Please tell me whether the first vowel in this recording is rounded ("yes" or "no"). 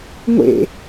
no